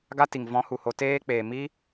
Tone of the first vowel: high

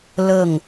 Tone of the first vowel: falling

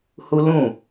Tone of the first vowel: high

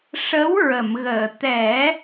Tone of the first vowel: rising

